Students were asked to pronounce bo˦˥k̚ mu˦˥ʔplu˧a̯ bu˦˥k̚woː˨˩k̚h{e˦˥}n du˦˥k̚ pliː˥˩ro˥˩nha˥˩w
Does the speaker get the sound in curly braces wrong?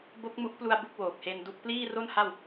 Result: yes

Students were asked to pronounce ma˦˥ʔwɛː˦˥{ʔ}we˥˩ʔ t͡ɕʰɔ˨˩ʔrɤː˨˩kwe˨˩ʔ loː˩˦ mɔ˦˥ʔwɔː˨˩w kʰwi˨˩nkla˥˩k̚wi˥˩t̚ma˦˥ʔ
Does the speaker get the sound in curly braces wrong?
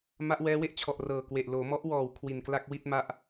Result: yes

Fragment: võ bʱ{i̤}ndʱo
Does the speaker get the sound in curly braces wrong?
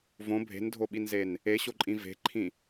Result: yes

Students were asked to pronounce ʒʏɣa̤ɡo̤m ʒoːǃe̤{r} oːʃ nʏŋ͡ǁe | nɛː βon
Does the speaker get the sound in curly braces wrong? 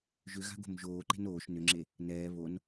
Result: yes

